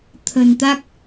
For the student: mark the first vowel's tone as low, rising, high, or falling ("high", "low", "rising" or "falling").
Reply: low